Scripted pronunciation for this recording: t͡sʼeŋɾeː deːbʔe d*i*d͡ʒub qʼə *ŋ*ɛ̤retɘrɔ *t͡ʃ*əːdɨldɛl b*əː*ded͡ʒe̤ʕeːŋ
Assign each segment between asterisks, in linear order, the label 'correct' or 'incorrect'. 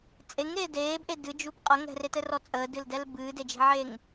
incorrect, correct, incorrect, incorrect

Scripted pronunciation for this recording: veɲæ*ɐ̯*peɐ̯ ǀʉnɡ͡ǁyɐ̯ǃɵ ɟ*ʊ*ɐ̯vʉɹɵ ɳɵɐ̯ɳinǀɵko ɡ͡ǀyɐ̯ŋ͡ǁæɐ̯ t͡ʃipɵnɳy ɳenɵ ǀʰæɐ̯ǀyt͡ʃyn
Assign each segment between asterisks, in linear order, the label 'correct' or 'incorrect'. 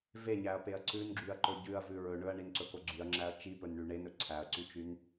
correct, incorrect

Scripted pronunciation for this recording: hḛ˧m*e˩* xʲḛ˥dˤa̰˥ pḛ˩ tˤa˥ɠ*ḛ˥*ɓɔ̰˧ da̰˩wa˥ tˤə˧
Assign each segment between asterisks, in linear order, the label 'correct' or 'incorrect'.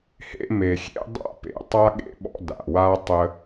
correct, correct

